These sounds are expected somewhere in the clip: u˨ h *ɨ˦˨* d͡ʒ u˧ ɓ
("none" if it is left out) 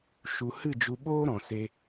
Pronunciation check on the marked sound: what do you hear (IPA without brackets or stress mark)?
ɨ˦˨